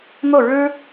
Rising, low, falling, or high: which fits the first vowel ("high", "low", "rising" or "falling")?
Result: falling